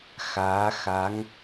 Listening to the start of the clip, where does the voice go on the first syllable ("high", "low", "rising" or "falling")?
rising